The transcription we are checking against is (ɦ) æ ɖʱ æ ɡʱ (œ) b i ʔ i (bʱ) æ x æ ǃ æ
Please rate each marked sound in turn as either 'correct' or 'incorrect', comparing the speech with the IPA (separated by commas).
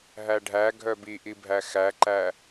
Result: correct, correct, correct